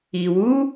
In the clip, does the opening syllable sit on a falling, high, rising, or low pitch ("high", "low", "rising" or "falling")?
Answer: low